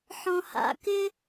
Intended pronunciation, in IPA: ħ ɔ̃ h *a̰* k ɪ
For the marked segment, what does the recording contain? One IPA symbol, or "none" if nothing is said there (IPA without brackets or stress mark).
a̰